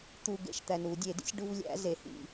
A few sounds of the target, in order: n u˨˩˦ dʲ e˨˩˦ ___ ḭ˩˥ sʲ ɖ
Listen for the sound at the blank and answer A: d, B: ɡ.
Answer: A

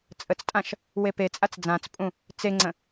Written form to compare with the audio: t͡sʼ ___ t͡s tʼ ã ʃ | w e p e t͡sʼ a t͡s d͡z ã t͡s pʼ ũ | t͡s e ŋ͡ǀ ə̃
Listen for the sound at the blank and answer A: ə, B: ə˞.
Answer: A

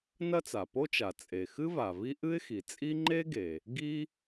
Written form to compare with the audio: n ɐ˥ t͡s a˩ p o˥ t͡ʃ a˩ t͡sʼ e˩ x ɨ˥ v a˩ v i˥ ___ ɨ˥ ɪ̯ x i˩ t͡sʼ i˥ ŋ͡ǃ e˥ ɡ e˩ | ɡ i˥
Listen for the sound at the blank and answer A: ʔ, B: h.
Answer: A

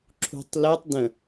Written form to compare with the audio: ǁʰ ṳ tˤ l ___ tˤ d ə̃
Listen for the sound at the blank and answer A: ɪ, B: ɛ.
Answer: B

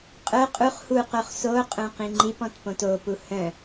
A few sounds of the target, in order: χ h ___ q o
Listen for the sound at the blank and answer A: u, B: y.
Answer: A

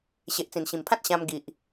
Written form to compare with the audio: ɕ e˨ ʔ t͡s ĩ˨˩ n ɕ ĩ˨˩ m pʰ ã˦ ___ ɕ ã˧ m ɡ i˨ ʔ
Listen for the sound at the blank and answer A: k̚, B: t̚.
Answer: B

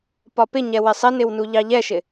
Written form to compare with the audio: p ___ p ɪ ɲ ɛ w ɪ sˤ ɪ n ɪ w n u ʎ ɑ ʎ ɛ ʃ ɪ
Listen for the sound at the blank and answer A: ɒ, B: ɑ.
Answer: A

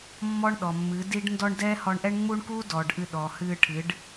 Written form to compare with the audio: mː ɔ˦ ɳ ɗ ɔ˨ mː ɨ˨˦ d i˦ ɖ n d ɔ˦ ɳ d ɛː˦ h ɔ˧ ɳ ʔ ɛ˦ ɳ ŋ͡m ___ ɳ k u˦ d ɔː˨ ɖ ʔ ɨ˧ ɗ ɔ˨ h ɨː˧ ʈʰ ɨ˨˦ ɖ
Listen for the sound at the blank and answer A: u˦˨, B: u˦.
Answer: B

